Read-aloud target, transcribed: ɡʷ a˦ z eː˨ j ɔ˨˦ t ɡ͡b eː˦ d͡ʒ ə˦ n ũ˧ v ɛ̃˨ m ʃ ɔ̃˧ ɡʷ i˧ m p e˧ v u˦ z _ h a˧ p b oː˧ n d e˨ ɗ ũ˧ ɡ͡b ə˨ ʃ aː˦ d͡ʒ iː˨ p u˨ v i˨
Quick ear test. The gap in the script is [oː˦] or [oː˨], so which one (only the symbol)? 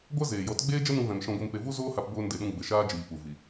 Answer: oː˦